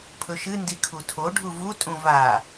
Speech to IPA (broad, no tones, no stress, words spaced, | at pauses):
pʰɵʃɨ ndikʰutʰo ɖʱuvu tʼũva